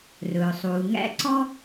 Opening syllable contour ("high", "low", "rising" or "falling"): low